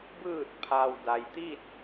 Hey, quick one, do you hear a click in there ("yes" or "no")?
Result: no